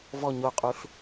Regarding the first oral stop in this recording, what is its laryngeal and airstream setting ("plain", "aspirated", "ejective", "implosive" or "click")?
ejective